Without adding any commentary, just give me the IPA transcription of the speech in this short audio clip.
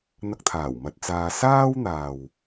n̪ɐ˧k̚t̪ʰaː˨˩w mɐ˧t̚t͡saː˧ saː˥wn̪aː˨w

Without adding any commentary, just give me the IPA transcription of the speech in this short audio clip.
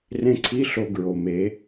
rẽ˧ǀʰi˧˥ ɬo˧ɡɹo˩me˩˧

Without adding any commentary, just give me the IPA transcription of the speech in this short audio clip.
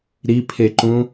ɾipʰeǃũ

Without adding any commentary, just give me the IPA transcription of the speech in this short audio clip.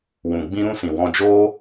wũ˨ ɡ͡bĩ˦ɾũ˦sĩ˨ wɔ̃˧d͡ʒoː˦

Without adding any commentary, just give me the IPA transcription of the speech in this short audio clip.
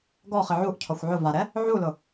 ɡɔχɪ ʕuʔcʰɔxʷ ʕʊ vaɾɛ | ʕulʊ

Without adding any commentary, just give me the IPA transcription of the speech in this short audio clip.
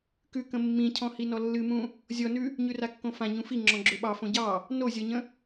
kʉkə̃ mːĩcʰɔ̃hinɔ lːɨmũ | zʲɔnʉ | ɲʉrakːõfã ɲũfi ŋ͡ǁɔ̃ɡ͡ǁøɓɑ fõɟɑ | nozʲɔɲə̃

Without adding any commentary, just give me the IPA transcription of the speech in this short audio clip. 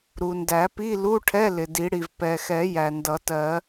ɾu˩ndæ˨˩˦pi˧˥˧ lu˧˥˧ʈʰɛ˧˥˧ lɪ˩di˨˩˦ɽi˩v pɛ˩xɛ˨˩˦ jæ˩ndʌ˨˩˦tɜ˨˩˦

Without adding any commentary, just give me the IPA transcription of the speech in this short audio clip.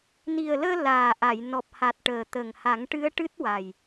ni˨˩ə̯ləː˧ laː˨˩ʔa˨˩˨j nɔ˨˩p̚ha˨˩t̚ ʈəː˨˩t̪ə˨˩ŋ ha˨˩˦ŋʈɨ˧˥ə̯ʈɨ˦˥t̚wa˨˩j

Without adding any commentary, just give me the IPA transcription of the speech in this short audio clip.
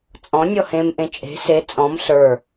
t͡sʼɔ̃ nʲɔhẽmʔẽ t͡ʃʼe̤ se t͡sʼɔ̃m ɬə˞

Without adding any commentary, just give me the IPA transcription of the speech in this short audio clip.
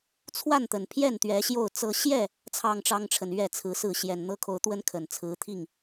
t͡sʰwa˥˨nt̪ə˨˩npʰjɛ˥˨n t̪ɥɛ˨˦ɕjo˥˨ʊ̯t͡sɤ˦ ɕjɛ˥˨ | t͡sʰɑ˥˨ŋʈ͡ʂɑ˦ŋʈ͡ʂʰə˨n ɥɛ˥˨t͡sʰɹ̩˨˦sɹ̩˥˨ ɕjɛ˨˩nn̪ɤ˦kʰo˨˦ʊ̯t̪wə˦n kʰə˨˩n t͡sʰɹ̩˨˦t̪ʰi˥˨ŋ

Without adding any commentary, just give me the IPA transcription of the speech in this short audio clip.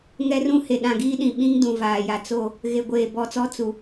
ŋɛ˦rũ˦he˨ ɗã˨ ɡiː˦ɗĩ˨ɓĩ˦ŋ dũ˨vaː˨ja˨t͡so˦˨ | ɣe˨ɡʷeː˨ bɔ˨t͡sɔ˦ t͡su˨

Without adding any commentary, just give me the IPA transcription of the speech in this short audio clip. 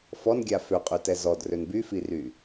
fɔnɡʲa føqʼytɛ zɔdrøn byfiry

